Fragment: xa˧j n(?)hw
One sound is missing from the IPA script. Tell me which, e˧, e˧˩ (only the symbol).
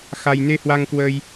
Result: e˧